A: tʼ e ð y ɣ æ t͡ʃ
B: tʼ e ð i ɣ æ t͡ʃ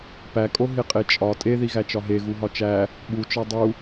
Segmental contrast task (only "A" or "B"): B